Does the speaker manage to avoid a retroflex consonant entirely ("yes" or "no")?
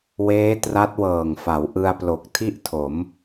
yes